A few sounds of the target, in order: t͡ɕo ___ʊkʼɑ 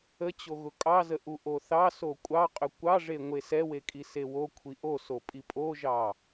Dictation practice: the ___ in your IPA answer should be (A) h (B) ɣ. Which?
B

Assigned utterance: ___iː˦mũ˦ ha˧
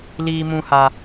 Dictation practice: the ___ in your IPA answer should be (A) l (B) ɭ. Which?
A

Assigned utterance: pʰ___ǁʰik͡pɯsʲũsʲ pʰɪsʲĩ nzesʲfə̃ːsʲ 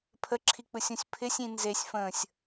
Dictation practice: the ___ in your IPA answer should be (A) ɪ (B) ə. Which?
B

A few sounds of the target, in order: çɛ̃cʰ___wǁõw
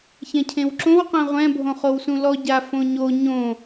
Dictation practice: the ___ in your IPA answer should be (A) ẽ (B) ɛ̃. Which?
A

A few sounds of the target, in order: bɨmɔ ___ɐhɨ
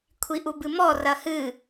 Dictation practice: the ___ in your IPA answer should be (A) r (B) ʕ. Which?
A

